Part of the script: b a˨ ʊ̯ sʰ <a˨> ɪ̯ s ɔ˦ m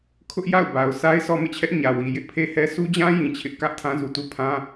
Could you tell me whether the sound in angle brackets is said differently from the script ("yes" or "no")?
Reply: yes